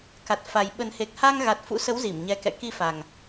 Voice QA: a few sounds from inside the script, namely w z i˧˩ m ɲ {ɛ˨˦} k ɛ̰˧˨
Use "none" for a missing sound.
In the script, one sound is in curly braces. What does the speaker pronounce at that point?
ɛ˨˦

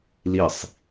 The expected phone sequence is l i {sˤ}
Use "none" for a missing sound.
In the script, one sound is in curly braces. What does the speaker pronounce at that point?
sˤ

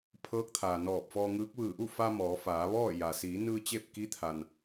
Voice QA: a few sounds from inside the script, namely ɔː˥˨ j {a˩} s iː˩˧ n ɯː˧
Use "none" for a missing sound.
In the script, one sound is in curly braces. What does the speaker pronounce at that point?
a˩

